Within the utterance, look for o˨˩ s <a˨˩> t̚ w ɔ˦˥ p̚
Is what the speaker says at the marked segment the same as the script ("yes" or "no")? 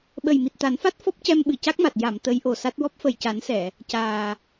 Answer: no